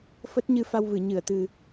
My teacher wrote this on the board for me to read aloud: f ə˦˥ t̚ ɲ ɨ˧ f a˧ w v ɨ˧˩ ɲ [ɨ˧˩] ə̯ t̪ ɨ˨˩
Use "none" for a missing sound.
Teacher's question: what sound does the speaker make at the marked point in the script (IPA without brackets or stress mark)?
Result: ɨ˧˩